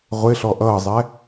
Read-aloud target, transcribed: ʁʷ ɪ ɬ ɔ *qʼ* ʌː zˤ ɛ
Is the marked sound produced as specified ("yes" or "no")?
no